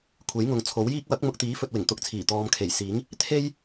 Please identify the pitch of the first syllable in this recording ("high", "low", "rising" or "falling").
rising